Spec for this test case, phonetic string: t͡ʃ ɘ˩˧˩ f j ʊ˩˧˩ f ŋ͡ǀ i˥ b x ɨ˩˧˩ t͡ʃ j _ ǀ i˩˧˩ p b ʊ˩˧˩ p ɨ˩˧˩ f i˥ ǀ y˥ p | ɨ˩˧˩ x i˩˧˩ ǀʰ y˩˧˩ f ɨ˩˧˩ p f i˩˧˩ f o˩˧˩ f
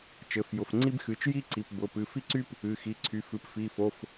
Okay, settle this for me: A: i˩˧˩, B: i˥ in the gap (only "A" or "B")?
B